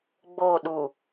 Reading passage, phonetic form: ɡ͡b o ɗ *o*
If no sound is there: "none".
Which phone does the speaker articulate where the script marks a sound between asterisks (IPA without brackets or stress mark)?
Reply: u